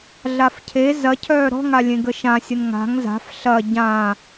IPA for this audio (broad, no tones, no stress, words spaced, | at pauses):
ɮafcʰe zɐcʰœː ɾɔ̤ŋa lʲẽɡəʃãsʲən ŋa̤ŋ za̤f ɬɐ ɟã